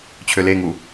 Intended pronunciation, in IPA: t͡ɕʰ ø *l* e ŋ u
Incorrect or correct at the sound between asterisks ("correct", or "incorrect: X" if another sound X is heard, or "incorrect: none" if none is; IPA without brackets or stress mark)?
correct